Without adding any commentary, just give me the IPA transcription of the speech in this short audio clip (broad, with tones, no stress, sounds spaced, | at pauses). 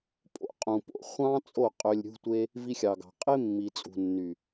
pʼ o̰˧ qʼ ũ˨ p o̰˨ χʷ ɑ̃˦ t͡sʼ o˦˨ qʼ ø˧ lʲ ɾʲ ṳ˦ tʷ e˦ | v i˧ xʲ ɑ˨ ɡ ɑ̤˨ qʼ e˦ mː i˨ t͡sʼ ṳ˨ nː y˨